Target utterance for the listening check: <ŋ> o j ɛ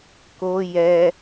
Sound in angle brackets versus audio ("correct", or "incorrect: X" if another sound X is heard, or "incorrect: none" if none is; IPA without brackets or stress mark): incorrect: k